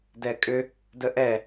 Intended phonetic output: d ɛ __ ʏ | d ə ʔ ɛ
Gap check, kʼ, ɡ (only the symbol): kʼ